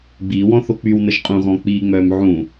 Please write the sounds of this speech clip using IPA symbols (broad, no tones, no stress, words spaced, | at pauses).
ɡ͡biːwɔ̃θo k͡pywnəʒ qʼũɣɔ̃ k͡piːŋ͡mœːm ʕũ